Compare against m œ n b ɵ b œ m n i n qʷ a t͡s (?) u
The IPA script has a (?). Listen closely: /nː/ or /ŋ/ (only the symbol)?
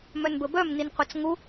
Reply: ŋ